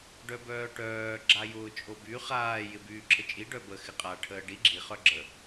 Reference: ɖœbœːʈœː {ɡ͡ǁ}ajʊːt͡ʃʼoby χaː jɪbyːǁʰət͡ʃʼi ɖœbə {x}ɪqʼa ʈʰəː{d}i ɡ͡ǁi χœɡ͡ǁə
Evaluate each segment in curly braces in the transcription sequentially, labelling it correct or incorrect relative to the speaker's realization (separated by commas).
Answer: correct, correct, incorrect